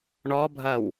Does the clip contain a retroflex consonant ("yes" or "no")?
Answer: yes